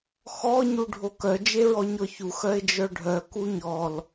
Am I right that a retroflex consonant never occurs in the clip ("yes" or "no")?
no